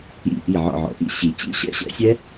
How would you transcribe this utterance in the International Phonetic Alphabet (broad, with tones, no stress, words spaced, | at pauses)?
ḭ˧˩ ʔi˧˩ʕɔ̰˧˩ʕɔ̰˨˩˦ ʔḭ˥˨ɕi˨˩˦ t͡ɕḭ˦˥ɕɛ̰˦˥ɕɛ̰˨˦ sʲɛ˦˥